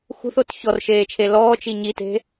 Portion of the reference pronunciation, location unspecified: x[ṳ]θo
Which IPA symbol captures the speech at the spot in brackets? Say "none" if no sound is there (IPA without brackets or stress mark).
ṳ